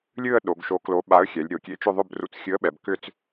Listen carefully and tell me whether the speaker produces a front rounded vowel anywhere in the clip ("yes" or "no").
yes